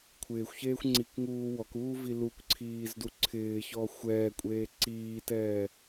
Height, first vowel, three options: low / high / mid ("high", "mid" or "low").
high